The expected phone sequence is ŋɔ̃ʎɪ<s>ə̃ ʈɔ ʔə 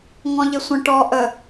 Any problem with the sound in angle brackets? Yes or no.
yes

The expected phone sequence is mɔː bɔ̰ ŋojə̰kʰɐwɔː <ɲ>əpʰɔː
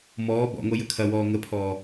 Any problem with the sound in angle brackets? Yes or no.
yes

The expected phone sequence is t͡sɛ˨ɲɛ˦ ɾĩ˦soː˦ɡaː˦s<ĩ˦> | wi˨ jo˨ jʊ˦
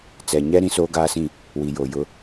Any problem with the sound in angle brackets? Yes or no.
yes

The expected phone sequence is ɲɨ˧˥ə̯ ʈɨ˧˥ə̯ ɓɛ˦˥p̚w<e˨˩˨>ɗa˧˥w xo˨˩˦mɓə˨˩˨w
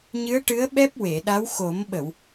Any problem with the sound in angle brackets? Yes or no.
no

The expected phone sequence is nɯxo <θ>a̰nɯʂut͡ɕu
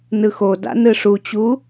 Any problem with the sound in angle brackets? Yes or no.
yes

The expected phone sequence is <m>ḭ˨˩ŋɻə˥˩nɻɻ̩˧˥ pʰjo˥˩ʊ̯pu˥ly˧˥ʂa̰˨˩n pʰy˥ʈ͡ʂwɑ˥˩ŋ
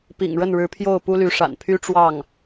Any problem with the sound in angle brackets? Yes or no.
yes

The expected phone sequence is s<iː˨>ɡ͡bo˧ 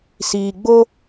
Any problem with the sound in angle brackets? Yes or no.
no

